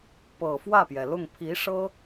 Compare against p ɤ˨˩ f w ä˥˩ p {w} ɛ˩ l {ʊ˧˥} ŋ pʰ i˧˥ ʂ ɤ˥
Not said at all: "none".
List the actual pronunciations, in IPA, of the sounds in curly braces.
j, ʊ˥˩

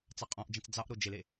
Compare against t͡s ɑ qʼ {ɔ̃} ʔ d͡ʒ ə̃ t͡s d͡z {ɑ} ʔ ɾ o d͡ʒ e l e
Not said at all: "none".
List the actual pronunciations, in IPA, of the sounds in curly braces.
ɔ̃, ɑ

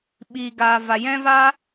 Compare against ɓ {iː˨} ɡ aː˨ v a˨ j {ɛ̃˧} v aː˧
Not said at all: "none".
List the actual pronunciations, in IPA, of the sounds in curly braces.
iː˨, ɛ̃˧

